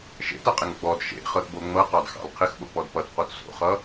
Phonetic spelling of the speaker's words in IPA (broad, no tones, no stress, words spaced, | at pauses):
ʃḛtʌqʼɪŋ ɡ͡bɔd ʃḛχɤtbo ŋ͡mɤqɑdxɑ̰l qʰɪxɓok͡pɔd pʌtqot so̰χʌ